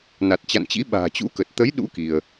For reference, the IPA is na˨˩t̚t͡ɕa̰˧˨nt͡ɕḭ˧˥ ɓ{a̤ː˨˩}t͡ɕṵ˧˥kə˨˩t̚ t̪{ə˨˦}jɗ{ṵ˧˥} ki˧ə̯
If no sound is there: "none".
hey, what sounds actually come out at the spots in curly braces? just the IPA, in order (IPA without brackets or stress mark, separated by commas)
a̤ː˨˩, ə˨˦, ṵ˧˥